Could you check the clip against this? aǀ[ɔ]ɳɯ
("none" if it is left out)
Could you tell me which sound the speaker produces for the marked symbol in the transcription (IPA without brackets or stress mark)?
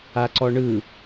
ɔ